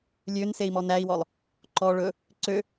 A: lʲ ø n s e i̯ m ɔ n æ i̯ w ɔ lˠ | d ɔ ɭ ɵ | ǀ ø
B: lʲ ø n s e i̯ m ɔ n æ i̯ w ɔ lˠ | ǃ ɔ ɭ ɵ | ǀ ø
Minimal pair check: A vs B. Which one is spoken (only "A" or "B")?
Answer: B